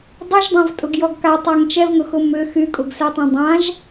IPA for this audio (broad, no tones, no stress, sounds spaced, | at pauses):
dˤ y ʒ dˤ ã v tʼ ʊ ɡ j ɔ ɡ k a tˤ a ŋ t͡ʃ ɛ v ŋ ʊ x ʊ m ʏ x y kʼ ʊ ɡ s ɛ tˤ ɛ̃ dˤ ã ʒ